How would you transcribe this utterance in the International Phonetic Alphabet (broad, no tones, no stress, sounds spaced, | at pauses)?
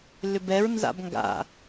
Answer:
l ʏ b ɛ ɹ n z a̰ b ŋ ɡ a̰